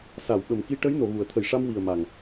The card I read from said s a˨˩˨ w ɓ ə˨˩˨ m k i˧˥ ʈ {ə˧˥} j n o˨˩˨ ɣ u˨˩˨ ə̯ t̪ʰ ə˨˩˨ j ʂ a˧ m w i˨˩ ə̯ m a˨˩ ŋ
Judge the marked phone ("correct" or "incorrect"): correct